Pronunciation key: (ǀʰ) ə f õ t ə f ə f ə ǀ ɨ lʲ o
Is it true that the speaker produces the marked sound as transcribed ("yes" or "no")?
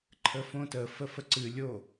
no